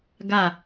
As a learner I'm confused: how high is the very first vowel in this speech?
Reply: low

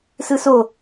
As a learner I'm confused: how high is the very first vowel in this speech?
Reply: high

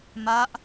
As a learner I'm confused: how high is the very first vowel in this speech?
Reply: low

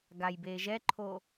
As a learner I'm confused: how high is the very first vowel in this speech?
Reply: low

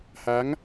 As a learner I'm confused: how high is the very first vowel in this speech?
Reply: low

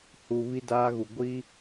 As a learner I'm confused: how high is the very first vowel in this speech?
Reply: high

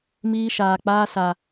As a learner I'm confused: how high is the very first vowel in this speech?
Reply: high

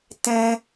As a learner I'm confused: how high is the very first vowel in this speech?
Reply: mid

